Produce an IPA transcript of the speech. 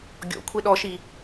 ɡʲ ɔ̰ kʷʰ e ɗ ɔ ʃ i

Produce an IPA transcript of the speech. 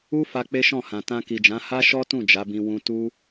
u˦ f a˧ k͡p e˦ ʃ ɔ̃˦˨ h ã˨ t ã˧ k i˨ d͡ʒ ã˨˦ h a˦ ʃ ɔ˦ t ũ˦˨ d͡ʒ a˨˦ b ĩ˧ w ũ˧ t u˦

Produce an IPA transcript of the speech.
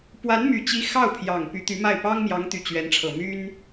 p w a˧˥ n m y˨˩ t͡ɕ i˧˥ x ɑ˥˩ ʊ̯ pʰ j ɑ˨˩ ŋ p y˧˥ t̪ y˧˥ m a˥˩ ɪ̯ p ɑ˥ ŋ m j ɑ˧˥ ŋ t̪ y˨˩ t͡ɕ ɥ ɛ˧˥ n ʈ͡ʂʰ ɤ˨˩ m y˥ n

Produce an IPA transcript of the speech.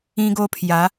ĩ˦ ɡ o˦ pʰ j a˨˦

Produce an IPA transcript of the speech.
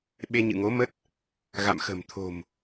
ɓ e˧ ɲ ɨ̰˧˨ ŋ o˨˦ m ə˦˥ t̚ | ɣ a̰˧˨ m x ə̤˨˩ m t̪ʰ o̤˨˩ m

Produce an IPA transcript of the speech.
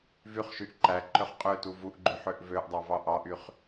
v y χ ʃ y ʔ ǃ æ ǃ ø χ qʼ ø t u v u ʔ ɡ͡ǃ y ħ ø ʔ v ø ʔ dˤ ɑ v ɑ ʔ ɑ ʔ y χ

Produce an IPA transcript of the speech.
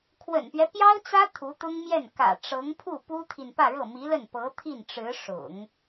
kʰ w ə̰˨˩ n p ɥ ɛ˦ p j ɑ˥ ʊ̯ t͡s ä˥ t̪ʰ u˧˥ t̪ ʊ˥ ŋ m j ɛ˥˩ n k ä̰˨˩ ʈ͡ʂ ɤ˧˥ ŋ pʰ u˥˩ p u˥ t̪ʰ i˨ n p ä˥˧ ɻ ɤ˥˩ m i˧˥ l ə˥˩ n p ɤ˧˥ t̪ʰ i˥˩ n ʈ͡ʂ ɻ̩˧˥ ʂ ʊ̰˨˩˦ ŋ

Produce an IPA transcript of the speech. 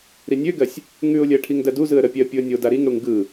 ɾ i nʲ ø ɡ ɜ sʲ | ŋ ʉ ʊ̯ lʲ ɜ ʈʰ i ŋ d ɜ d u z ɯ ə̯ ɾ ə pʲ ɛ ə̯ pʲ u ə̯ nʲ o d a ɾ i ŋ ɽ u ŋ ɡ ɯ

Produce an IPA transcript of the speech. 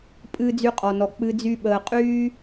pʼ ɨː˨ d͡z y˨ qʼ ɔ˩ n ɔ˩ k͡p ɨ˨ d͡z y˨ ɓ əː˨ qʼ yː˦

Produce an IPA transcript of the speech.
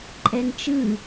ǃʼ ɛ n t͡ʃ ɯ

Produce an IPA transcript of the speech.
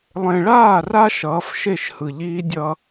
lˠ ẽ˨ ɭ aː˦˨ r a˦ ʃ ʌː˨˦ f ʃ e˦˨ ʃ h ɯ˨ ʎ iː˦ dʲ ʌ˦

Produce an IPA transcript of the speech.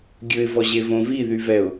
ɡʲ ɵ ɪ̯ v ɔ ʑ e v õ v i ð y v ɛ ʊ̯

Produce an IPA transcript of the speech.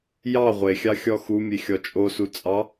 j ɑ ʁʷ e xʲ ɑ xʲ ɔ x u mʲ e xʲ ɔ t͡ʃʼ o s u t͡sʼ ɑ

